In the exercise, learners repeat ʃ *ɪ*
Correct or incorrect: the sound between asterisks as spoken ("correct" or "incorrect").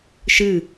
incorrect